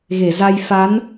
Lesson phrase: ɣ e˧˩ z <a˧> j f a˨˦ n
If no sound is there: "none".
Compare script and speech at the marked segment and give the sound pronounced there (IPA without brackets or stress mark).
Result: a˧